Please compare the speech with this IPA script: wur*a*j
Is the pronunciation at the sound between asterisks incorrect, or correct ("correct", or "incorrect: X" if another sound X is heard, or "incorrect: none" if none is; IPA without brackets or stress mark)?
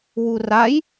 correct